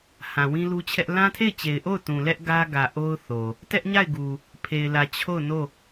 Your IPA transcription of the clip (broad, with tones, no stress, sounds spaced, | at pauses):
h ã˨ w ĩ˦ l u˦ t͡ɕʰ ɛ˦ ʔ l ã˦ tʰ e˦˨ ɪ̯ t͡ɕ e˨ ɪ̯ ʔ o˦˨ ʊ̯ t ũ˨ l ɛ˦ ʔ ɡ ä˦ ɡ ä˨ ʔ o˦ ʊ̯ θ o˨ | t ɛ˦ ʔ ɲ a˦˨ ɪ̯ ɡ u˨ | pʰ e˨ ɪ̯ l ä˨ t͡ɕʰ o˦˨ ʊ̯ n o˦˨